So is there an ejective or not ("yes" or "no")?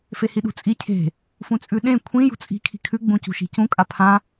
yes